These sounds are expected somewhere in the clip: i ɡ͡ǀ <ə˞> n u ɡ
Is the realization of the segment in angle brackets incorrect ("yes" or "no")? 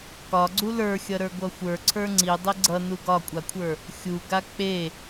yes